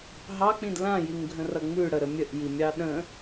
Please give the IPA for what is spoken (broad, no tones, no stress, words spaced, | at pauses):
ɦɑk͡pĩd lãjiŋɡʱə̃rʌ ŋ͡mʉɽəɾə mʲəʔjimʲɑ ɗə̃